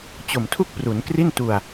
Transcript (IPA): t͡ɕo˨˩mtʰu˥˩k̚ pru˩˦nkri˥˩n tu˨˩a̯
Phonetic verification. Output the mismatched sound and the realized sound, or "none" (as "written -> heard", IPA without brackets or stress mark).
none